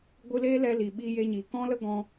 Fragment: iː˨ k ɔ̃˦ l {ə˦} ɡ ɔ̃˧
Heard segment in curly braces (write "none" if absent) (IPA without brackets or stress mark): ə˦